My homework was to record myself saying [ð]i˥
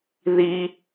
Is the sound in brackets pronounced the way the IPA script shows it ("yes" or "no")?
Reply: yes